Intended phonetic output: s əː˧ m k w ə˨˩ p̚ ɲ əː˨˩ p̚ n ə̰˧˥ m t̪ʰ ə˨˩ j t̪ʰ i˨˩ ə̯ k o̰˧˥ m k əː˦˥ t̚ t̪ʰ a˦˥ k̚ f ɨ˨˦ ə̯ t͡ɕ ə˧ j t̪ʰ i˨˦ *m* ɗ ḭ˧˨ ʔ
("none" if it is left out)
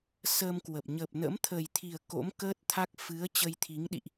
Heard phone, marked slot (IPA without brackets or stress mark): ŋ